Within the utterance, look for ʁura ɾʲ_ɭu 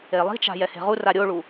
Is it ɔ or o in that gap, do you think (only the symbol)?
o